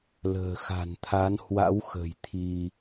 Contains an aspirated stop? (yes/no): yes